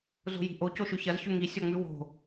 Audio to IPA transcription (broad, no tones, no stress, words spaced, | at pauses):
zo̤ji̤ʔo coʃʉçɐz çʉŋi sʲɔŋ͡mʉwo̤